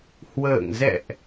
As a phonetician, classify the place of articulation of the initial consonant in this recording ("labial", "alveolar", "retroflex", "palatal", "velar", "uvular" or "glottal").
glottal